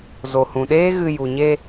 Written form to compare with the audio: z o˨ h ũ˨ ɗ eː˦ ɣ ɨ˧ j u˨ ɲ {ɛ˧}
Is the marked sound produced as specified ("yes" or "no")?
no